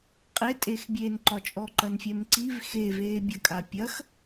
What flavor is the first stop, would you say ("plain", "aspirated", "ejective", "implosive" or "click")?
ejective